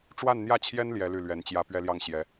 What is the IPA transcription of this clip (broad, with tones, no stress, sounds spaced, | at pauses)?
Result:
ʈ͡ʂ w a˥˧ n n̪ j ä˥˩ t͡ɕʰ j ɛ˥ n l j ɛ˥ l y˥˩ l ɥ ɛ˧˥ n t͡ɕ j ä˥ p ɥ ɛ˥ l j ɑ˥˩ ŋ ɕ j ɛ˧˥